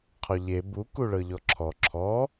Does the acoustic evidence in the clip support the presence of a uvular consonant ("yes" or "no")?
yes